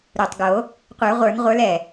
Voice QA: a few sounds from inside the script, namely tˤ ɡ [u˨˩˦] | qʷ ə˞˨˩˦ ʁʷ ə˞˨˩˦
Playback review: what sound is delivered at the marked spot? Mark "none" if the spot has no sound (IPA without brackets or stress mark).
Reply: o˨˩˦